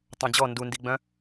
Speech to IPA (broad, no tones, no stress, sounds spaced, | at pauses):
tˤ õ d͡ʑ ɔ n d u n d i ɡ͡b œ̃